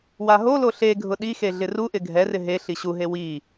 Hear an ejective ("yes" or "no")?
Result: no